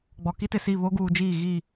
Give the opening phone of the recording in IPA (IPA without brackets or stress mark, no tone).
ɡ͡b